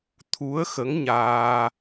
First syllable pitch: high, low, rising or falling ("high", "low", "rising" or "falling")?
rising